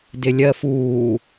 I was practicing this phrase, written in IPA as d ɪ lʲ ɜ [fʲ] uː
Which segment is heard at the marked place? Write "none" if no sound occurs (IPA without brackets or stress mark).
f